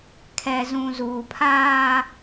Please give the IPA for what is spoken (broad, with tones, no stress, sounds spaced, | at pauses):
kʰ ɛ˨ z ũ˨ z uː˨ pʰ aː˦